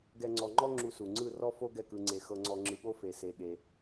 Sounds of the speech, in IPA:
ɡ ɛ˧ ŋ͡ǀ ɔ˧ ŋ͡ǃ ɔ˦ ŋ͡ǁ u˧ s u˨ ŋ͡ǀ ɯ˦˨ r ɔ˦ f o˦ ɡ ɛ˦˨ k ɯ˧ ŋ͡ǀ e˧ x ɤ˧ ŋ͡ǀ ɔ˧ ŋ͡ǁ ɯ˧ ɠ o˦ f e˧ s e˧ ɠ e˧

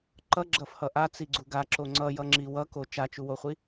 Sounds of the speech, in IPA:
ǃ ʌ ɡ͡ǁ ʌ f h ʌ ʔ a t͡s i ɡ͡ǀ u ɡ a ǁ o ŋ͡ǀ ʌ j ʌ ŋ͡ǁ i w ʌ k o t͡ʃ a t͡ʃ u w o χʷ i

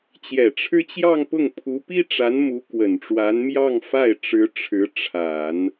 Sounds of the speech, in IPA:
t͡ɕ j ɛ˨˩ ʈ͡ʂʰ ɻ̩˥ t͡ɕ j ɑ˥˧ ŋ p ʊ˥˩ ŋ pʰ u˧˥ p i˥ ʈ͡ʂ a˧˥ n m u˧˥ k w ə˨˩ n ʈ͡ʂ w a˧˥ n m j ɑ˥˧ ŋ f a˥˩ ɪ̯ ʈ͡ʂ ɻ̩˧˥ ʈ͡ʂʰ ɻ̩˧˥ ʈ͡ʂʰ a˨˩˦ n

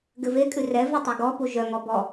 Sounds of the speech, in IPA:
ɡ ɘ v e kʼ ʉ r ɛ v e tˤ ɛ ɡ ɔ p u ʒ œ ŋ ɔ b ɔ

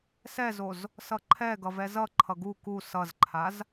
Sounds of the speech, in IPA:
s ɛ z o z | s ʌ ǃʰ ɛ ɡ ʌ v ɛ z ʌ ǃʰ ʌ ɡ u k u s ʌ z ǃʰ a z

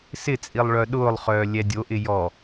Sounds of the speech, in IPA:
s ɪ t͡sʼ i lˠ ɭ œ ɗ ʊː lˠ χ œː lʲ ɛ dʲ o ʔ ɪ j ɔ

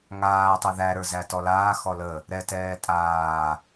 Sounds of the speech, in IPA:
ŋ aː tˤ ə˞ ð æ ɾ ə˞ z æ t ɔ l aː x ɔ l ə | ɾ ɛ t ɛː tʼ aː

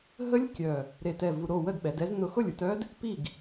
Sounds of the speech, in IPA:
ɦ ə˦˥ lʲ kʲ œ˨˩ | ɾ e˨˩ t ɛ˨˩ v u˧ ɾ o˥˨ w ə˥˨ d ɓ ɛ˩˧ d ɛ˦˥ z n ʊ˧ x ʊ˥˨ lʲ u˧ t œ˦˥ d | p i˥˨ ɡ

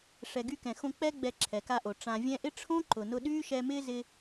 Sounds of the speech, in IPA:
ʂ ɛ˨ ɡ y˧ k ɛ̃˨ x õ˧ k͡p ɛ˦ ɡ͡b ɛ˧ ǁʰ ɛ˨ k a˧ ʔ o˨ ʈ͡ʂ ã˨ vʲ ɛ̃˧ ʔ ɪ˦ ʈ͡ʂʰ õ˦ ǃ ʊ˨ n ʊ˧ ɗ yː˦ ʃ ɛ˧ m ɪː˦ z ɪ˧

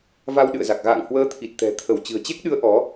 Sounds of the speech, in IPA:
v a˧ w ɗ ɨ̰˧˨ ə̯ z a˨˩ k̚ ɣ a̰ː˧˨ ŋ h w əː˧ t̪ʰ i˨˩ t̚ t̪ ɛ̤˨˩ t̪ʰ ə˧˩ w t͡ɕ ɨ̤˨˩ ə̯ t͡ɕ e˦˥ k̚ ɗ ɨ˨˦ ə̯ ʔ ɔ˨˦

